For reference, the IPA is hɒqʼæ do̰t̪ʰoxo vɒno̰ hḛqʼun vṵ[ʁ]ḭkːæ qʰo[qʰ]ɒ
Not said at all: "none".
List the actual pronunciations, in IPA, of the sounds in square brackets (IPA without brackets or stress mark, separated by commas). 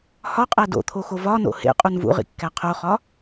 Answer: ʁ, χ